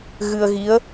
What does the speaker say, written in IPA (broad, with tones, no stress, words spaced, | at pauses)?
ɣɨ˧ə̯ɣi˧˥ə̯